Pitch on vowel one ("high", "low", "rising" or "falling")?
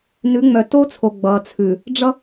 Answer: rising